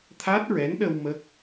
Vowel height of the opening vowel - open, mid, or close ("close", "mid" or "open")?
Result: open